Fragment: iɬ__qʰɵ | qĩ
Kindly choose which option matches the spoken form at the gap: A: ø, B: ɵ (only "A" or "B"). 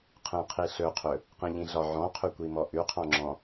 B